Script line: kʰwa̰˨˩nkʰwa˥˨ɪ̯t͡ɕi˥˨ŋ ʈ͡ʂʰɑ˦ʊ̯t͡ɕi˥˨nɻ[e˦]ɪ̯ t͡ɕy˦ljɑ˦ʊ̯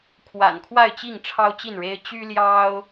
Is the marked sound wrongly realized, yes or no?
no